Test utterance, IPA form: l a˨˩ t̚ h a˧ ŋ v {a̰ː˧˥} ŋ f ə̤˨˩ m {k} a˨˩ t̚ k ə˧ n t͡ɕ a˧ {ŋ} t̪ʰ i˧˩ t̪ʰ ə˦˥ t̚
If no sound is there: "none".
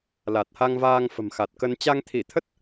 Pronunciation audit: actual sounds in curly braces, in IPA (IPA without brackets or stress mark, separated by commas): aː˧, x, ŋ